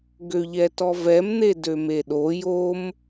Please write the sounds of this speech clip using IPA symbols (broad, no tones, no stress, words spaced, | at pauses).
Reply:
ɡøʎɛtɔvɛm n̪edømeɗo jom